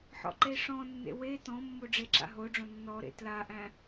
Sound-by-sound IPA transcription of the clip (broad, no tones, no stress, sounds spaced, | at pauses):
ħ ɔ̰ ǃ e ʂ ɔ̃ nː ḛ w e t ɔ̃ mː o ɖ͡ʐ e ǁ a̰ ɦ o ɖ͡ʐ õ nː ɔ ɾ ḛ t l a ʔ æ̃